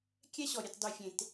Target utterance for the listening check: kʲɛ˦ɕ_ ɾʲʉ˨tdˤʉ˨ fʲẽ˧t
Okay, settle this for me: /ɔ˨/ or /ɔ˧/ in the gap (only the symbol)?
ɔ˨